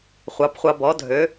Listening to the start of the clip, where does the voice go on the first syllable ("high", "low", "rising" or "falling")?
rising